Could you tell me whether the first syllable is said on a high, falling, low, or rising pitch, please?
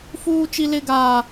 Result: high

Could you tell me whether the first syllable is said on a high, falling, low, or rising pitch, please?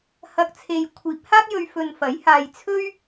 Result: low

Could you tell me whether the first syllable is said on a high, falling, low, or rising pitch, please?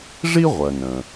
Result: high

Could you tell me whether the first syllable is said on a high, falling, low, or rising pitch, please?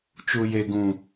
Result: low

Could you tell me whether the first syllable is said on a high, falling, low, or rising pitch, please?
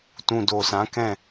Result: low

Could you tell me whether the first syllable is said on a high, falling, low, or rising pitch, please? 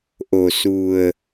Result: low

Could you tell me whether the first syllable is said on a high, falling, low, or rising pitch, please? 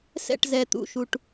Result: falling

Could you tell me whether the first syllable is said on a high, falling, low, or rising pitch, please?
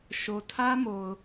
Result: low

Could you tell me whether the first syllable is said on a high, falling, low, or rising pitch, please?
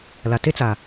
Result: low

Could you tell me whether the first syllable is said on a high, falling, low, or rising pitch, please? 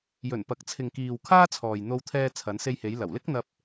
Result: low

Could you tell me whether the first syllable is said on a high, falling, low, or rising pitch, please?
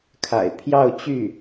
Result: low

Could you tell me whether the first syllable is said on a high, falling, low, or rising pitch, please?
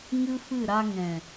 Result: high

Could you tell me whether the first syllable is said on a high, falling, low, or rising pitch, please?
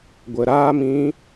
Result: low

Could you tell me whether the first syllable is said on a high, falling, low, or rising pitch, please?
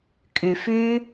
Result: low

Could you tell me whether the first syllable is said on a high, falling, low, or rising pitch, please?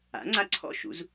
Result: rising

